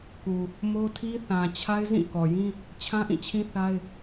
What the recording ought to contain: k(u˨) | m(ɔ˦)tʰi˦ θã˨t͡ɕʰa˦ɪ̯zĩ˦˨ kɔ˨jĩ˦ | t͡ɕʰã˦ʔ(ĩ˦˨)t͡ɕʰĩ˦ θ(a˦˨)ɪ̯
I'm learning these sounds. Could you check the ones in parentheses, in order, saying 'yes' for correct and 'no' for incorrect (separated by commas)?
yes, no, yes, no